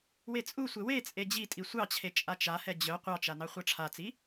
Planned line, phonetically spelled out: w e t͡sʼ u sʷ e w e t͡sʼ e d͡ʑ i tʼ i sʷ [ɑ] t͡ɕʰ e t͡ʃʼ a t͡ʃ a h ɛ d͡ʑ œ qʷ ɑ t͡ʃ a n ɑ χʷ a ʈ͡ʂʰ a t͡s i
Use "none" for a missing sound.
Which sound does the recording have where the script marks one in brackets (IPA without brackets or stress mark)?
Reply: ɑ